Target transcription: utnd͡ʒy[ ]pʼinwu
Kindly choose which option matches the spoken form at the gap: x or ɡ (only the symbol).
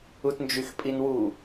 x